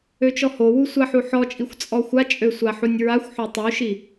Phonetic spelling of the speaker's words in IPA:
øt͡ʃɔhowu sʷaħuħɔt͡ʃʼixʷ t͡sʼɔxʷat͡ʃʼø sʷaħunʲɹaxʷħo tˤuʃi

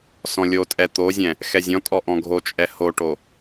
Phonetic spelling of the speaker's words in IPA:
sɔ̃lʲotʼɛ t̪ozʲɛ̃ | xɛzʲɔ̃tʼɔ ʔɔ̃ɡʱot͡ʃʼɛ hoʈo

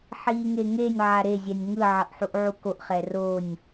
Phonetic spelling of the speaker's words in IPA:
ħiːŋeŋenʲ ʕaɾe zʲɛnʲŋɯ ʕʌʔħuʔʕukoʔ χɛronʲ

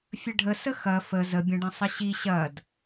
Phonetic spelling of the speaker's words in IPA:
fʲəɖʱə səxɐ fə zəbʲɐ̃ɖɐ̃ sˤəɕi ɕɐd

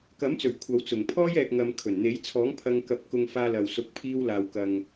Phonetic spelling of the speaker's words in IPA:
kɐ˨˥mt͡sɵ˨˩ɥ kʷʰɐ˨˧w t͡sʊ˨˩ŋ pʰɔː˥j ɛː˧k̚ŋɐ˧mkʰɵ˨˩n n̪e˨˥jt͡sʰɔː˨˥ŋpʰɐ˧ŋkɐ˨˥p̚ kʊ˧ŋfaː˧lɐ˨w sʊ˨˥k̚pʰiː˧wlaː˨wkɐ˨ŋ

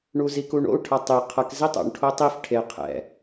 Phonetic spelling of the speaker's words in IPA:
ɳuzikuɳo̰u̯ ʈʰʌtˤi qʰʌk zitˤo̰ɳ ʈʰotˤif ʈʰe qʰɛ̰

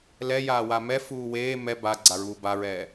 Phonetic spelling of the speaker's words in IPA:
lɛjaːwa mɛfuː weː mɛ baɡ͡ǀaɹuː baɹɛː

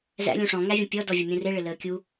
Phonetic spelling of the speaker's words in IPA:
zæ̰ lʲũʂɔ̃ ŋævʲə̃pʲɔ dɔvʲʊmʲũrɪ ɭɪləːkʲu

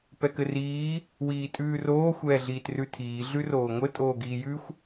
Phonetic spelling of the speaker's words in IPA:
pɛkɘriː | wiːtʼʉːroː xʷɛːɮiːtrʉtʰiː ɮʉroːŋʷɘ tʼoːɡiːjʉxʷ

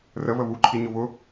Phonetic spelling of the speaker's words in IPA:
rə βəβuǃʰi ɲʊβʊ

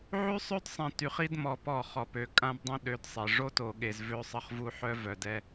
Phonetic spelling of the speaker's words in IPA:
ʕy˦sˤø˦dsˤɛ̃˨ ty˨χi˦dmɔ˨pɔ˦˨ χɔ˨pø˨ kʼã˦bdˤɛ̃˦ ɗø˨˦dsˤe˨ ʐo˦to˨ɠe˨z vø˦sˤə˦χvu˦ ħœ˦vœ˨dɛ˦

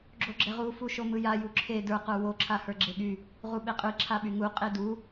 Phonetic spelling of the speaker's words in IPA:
ɡ͡ǁoɡ͡ǁɛʁu fuʃomɯja juǁʰe də˞ qə˞wo ǁʰahə˞ɡ͡ǁeɠy | ʁuɓeqʼɯ ǁʰaɓyŋu qʼedu

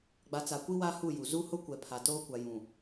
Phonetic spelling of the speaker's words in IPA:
ɡ͡ba˨t͡sa˨kʷi˦ wa˦hu˦˨ju˨ zu˦hʊ˦ kʷɛ˨pʰa˨toː˦ kʷa˨jũ˨

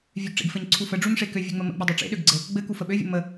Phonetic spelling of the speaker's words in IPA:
vʲøɡʈ͡ʂḛɡfɘɲ ǀʰufəɖ͡ʐuɲ ʂekøvʲø ŋ͡məmə̰ɡ͡bə dˤøʈ͡ʂḛɗøɡɡ͡ǀɘ | ɡ͡bɘ kufəɓøvʲə̰ mə

